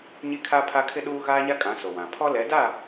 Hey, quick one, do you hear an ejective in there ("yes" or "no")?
yes